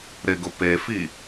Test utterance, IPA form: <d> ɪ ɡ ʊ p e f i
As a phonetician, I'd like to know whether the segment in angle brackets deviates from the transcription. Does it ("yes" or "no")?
yes